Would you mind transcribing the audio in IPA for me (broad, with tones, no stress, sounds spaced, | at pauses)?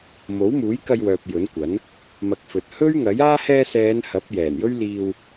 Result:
m o˨˥ w m uː˨˥ j k ɐ˧ j w œː˨ p̚ j ɵ˨˥ n kʷ ɐ˨˥ n | m ɐ˨ k̚ f ɵ˨ t̚ h ɵ˥ ɥ ŋ ɐ˨˥ j aː˥ h ɛː˧ s ɛː˨˧ n h ɐ˨˥ p̚ j ɛː˨˩ n j ɵ˥ ɥ l iː˧ w